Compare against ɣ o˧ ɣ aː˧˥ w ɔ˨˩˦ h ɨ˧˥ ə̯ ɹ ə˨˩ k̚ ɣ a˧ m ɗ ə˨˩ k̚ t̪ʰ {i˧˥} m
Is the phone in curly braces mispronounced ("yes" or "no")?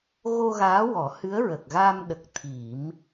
yes